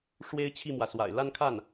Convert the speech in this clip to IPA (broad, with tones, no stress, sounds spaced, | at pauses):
ʂ w e˥ ɪ̯ t͡ɕʰ i˥˩ m w ä˩ s w a̰˨˩ ɪ̯ l a˥˧ n kʰ a˥˩ n